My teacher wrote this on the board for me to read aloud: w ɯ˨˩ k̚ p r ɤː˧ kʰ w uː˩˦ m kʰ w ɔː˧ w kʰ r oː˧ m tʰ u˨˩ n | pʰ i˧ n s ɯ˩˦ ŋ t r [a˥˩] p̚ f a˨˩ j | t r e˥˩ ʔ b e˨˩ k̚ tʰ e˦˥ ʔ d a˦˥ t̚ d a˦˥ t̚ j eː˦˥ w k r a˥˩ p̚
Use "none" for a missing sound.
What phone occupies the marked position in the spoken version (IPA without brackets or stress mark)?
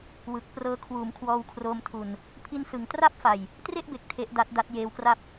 a˥˩